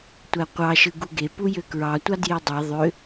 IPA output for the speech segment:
tʷæqʷɑʃɯ ɡuɡepu jøkɹɑ tʷɑdjedˤe ðˤø

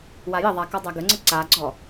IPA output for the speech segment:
wajəðˤa kɔdˤæɡəŋ͡ǀə ǀaɡ͡ǀɔ

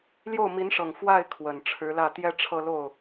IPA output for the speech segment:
ljo˥˩ʊ̯mi˧˥nʂɤ˨˩ŋ fwa˥˩ɪ̯ kʰwə˨˩nʈ͡ʂʰɻ̩˧˥lä˥˩t̪jɛ˥ ʈ͡ʂʰɤ˥˧lo˥˩ʊ̯

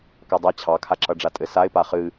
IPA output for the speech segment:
kadˤa t͡ɕʰɑkʰaǁʌɖ͡ʐa tʼɘsaɪ̯pa χɨ

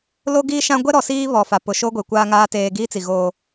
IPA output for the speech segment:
lo˦ɡiː˦ ʃã˦ ɡʷɛ˦ɾɔ˨siː˦βɔ˨ fa˨pʊ˨ʃo˦ɡʷe˨ kʷaː˦ŋaː˦ teː˦ ɡiː˦t͡si˨ ɣoː˦

